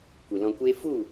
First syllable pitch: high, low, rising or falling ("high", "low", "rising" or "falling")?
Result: low